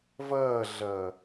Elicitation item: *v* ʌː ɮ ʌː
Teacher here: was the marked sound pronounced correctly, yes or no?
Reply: yes